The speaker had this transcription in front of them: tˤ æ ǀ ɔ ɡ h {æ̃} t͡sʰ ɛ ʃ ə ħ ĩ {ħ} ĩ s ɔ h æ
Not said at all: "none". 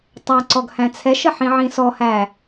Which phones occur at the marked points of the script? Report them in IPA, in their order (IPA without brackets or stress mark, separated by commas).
æ̃, ʕ